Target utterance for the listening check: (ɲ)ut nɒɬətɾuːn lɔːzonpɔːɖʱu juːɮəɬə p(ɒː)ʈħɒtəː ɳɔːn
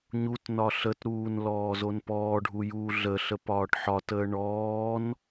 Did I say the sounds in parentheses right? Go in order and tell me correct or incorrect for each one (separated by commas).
correct, correct